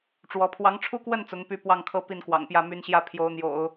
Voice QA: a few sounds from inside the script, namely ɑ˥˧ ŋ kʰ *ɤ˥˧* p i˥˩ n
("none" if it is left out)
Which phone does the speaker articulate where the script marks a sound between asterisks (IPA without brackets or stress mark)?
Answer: ɤ˥˧